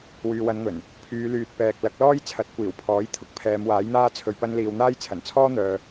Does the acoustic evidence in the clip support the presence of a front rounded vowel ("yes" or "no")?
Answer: yes